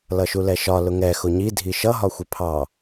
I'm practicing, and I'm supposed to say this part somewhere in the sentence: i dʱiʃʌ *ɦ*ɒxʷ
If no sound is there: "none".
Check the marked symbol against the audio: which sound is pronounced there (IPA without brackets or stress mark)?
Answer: ɦ